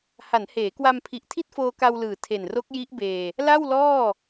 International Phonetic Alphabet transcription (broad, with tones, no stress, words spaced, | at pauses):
ha˩˦nheː˩˦kwa˧mpʰi˨˩ʔ tʰi˥˩t̚foː˧ka˧w lɯː˨˩tʰe˨˩nro˦˥k̚ ji˦˥ʔbeː˧ | la˥˩wlɔː˥˩